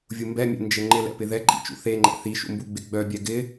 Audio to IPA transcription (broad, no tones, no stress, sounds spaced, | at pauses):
vʲ u m b ɛ mʲ ɛ̰ n d͡ʒ ɘ ŋ͡ǃ ɪ l ɛ̰ p ɪ ð ɛ ǃʼ ḭ t͡ʃ ṵ θ e ŋ͡ǃ ɛ̰ θ i ʃ ṵ m b u ɡ͡b ɪ ɡ͡b œ bʲ ɛ ɡ ɪ